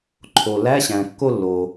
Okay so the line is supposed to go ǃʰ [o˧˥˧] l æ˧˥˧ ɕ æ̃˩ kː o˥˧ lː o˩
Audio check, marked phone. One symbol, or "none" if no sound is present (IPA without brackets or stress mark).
o˩